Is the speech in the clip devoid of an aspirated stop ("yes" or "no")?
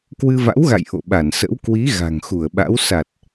yes